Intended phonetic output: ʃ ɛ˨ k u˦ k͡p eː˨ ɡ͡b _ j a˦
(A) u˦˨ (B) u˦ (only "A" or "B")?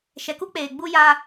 B